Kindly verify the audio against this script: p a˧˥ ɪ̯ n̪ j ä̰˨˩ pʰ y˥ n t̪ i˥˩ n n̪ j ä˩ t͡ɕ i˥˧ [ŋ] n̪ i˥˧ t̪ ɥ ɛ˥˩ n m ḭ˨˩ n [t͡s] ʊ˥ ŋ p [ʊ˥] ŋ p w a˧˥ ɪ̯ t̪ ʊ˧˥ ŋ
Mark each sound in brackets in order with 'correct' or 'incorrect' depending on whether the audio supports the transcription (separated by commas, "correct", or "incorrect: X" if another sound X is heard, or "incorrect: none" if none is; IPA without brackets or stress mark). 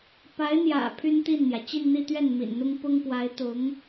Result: incorrect: n, incorrect: n̪, correct